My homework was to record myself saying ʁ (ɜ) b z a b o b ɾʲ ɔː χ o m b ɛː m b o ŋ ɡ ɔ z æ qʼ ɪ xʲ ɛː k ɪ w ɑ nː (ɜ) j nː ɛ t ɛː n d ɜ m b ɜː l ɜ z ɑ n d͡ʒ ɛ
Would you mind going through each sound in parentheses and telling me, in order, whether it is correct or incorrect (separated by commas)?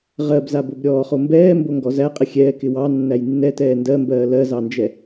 correct, incorrect